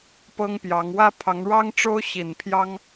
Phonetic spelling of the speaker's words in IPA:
p ɤ˥ ŋ p j ɑ˧˥ ŋ w ä˥ pʰ ɑ˧˥ ŋ ɻ ɑ˥ ŋ ʈ͡ʂ o˥ ʊ̯ ɕ i˨˩ n pʰ j ɑ˥ ŋ

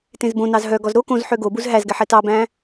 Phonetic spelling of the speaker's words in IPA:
t ẽ z b õ n ɑ z ɦ œ ɡ ɔ z ɾ o k õ z ħ ø ɡ o b u z ɦ æ z ɡ ɛ ħ ɛ t ɑ b æ̃

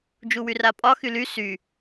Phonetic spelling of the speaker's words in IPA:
d͡ʒ u w y r a pʼ ɒ x y l y s y

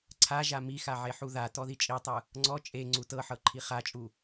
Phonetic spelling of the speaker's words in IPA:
ǀʰ a ʒ a m i x a ʕ e ħ u ð a t ɔ ð i t͡ʃʼ i tˤ ɯ | ŋ͡ǀ ɔ t͡ʃʼ e ŋ͡ǀ u t ɤ ħ ɤ ǃʰ i χ a t͡ʃʼ u

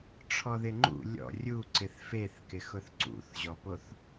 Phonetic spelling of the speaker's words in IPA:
ʈ͡ʂʰ ɔ ð ɪ ŋ͡ǃ ṵ lʲ ɔ̰ rʲ u ǀ ɪ θ f e θ k ɪ x ʊ θ ǀ ṵ θ ʑ ɔ p o θ

